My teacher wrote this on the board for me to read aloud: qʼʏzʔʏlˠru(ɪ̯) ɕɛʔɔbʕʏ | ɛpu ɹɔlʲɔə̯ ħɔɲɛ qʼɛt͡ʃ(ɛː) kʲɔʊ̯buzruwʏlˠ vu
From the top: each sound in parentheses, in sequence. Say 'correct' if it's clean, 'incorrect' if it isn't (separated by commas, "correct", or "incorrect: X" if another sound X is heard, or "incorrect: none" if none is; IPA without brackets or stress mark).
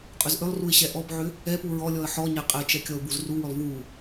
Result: correct, incorrect: ɛ